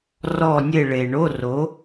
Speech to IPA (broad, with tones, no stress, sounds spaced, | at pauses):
r ɔ˦˨ nʲ e˦˨ ɭ e˩ ɳ o˧˥˧ r o˩˥